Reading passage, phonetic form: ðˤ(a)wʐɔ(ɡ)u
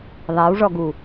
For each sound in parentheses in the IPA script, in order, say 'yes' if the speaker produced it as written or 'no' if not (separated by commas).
yes, yes